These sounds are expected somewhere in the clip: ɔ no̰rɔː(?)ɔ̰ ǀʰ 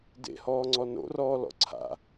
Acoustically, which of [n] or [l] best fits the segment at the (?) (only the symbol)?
l